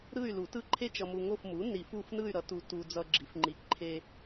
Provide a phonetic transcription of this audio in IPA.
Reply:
ɾ ɯ˦˨ y̯ l u˨˩˦ t ɯ˦˨ ǃʰ e˦˨ t͡ʃ ʌ˨ m u˨ ŋ o˦˨ f m u˩˥ n i˨˩˦ f u˦˨ f n ɯ˦˨ y̯ ɾ ʌ˩˥ t u˨ t u˨ d͡z ʌ˨ ɡ͡ǁ i˩˥ f ŋ͡ǃ i˨ ǃʰ e˦

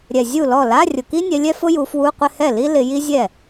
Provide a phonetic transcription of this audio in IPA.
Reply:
ɾʲ ɛ˨˩ zʲ u˥˩ l ɔ˥˩ l a˧˥˧ rʲ ʊ˨˩ k i˥ nʲ ɛ˨˦ lʲ ɛ˥ f ʊ˥ j u˨˦ f w u˧˥˧ qʷ ɪ˥˧ h ɛ˥˩ l i˥ l ɪ˨˦ j i˥ zʲ ɛ˥˩

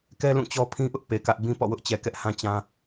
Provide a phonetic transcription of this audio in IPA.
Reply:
k ɛ˦ l ũ˦˨ t͡ɕ ɔ˦ pʰ ĩ˦ ʔ ʊ˦ ʔ p e˨ k ä˦ ʔ b ĩ˦ p ɔ̰˦˨ w ʊ˦ ʔ t͡ɕ ɛ˨ k ɛ˦ ʔ h ã˦ t͡ɕ ã˦

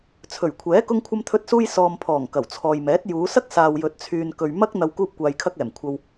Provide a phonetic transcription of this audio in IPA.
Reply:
t͡sʰ ɵ˨˩ ɥ kʷʰ ɛː˨˥ k ʊ˥ ŋ kʷʰ ɐ˥ m t̪ʰ ɵ˥ t̚ s uː˥ j s ɔː˨ m pʰ ɔː˨˩ ŋ k ɐ˨˩ w t͡sʰ ɔː˨ j m ɛː˨˥ t̚ j uː˨˧ s ɐ˥ k̚ s aː˨ w j ɵ˨ t̚ t͡sʰ yː˨ n k ɵ˨ ɥ m ɐ˥ k̚ n̪ ɐ˧ w k uː˧ p̚ kʷ aː˨ j kʰ ɐ˧ k̚ ɛː˨˩ m kʷʰ ɐ˨ w

